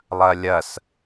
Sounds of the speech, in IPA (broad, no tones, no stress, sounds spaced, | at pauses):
lˠ ɐ lʲ ɐ s